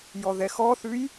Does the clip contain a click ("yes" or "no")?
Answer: no